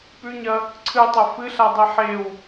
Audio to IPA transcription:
pʉɲɐ | ǀʰɨtˤɐ fɨɬadˤi ħew

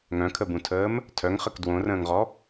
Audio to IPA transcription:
ŋœ̃kʰəbũtʰəːm | tʰœŋχək dwõrə̃ːŋʁɔ

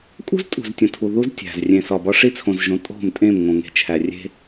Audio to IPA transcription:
kʼṳ˦ztʼṳ˨z tʲõ˨tʰu˨ðu˦z tʲæ̤˨z rʲẽ˨sɒ˨bɒ˦ ʂi˦t͡sʰõ˨zʒõ˨ tʼo̤˦˨mtʼẽ˦˨m ŋõ˨ ŋe̤˨t͡ʃʰæ˨ rʲe̤˦

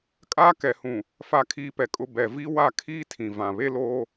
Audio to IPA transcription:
kʼaː˦kɛ˨hũ˨ | fa˦kʰiː˦pɛ˨kʼʊ˦ bɛ˨vi˦ wa˦˨ kʰiː˦tʰĩ˨ vã˨βe˦loː˦

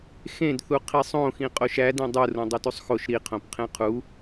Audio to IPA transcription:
xẽdθu qʰisˤõxĩ qʼoʃæ dẽdˤurõ dˤotusˤxoʃ ɾiqʰõp qʰẽqʰu

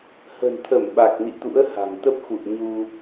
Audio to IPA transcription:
hə̤˨˩nt̪ʰə˧˩mɓa˨˩k̚nḭ˧˨ t̪ṵ˧˥ə̯ha̤˨˩ŋt̪ə˦˥p̚ xṵ˧˨ə̯ ɲu˧

